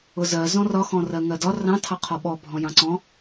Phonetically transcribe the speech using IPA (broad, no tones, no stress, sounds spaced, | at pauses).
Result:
ʊ z ɜ z ɔ̃ r ɒ x ɔ̃ r ɜ ŋ ɜ d ɒ r ɑ̃ tʰ ɑ qʰ ɒ ɓ ɔ bʱ ɔ̃ j ɑ̃ ǀ ɔ̃